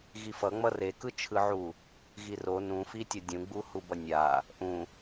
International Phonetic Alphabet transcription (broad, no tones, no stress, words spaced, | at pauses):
ɣifʌŋ͡mʌ rekɯt͡ʃʰɯʕu | ɣiro nũfitʲʌ dʲũɡ͡bu hubʌnʲa | ʔũ